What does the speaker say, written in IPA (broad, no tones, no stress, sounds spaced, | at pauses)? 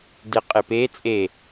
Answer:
d e qʼ e p e t͡sʼ e